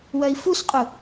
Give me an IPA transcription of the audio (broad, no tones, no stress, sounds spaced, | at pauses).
w œ i̯ f u s qʼ u